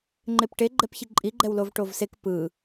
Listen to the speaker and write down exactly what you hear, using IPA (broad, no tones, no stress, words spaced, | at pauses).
ŋ͡ǃepʈeɡ͡ǃɛpçi ǃʼi ɡ͡ǃɛwlovʈovsek pɯ